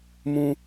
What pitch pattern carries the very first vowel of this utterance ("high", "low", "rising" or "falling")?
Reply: low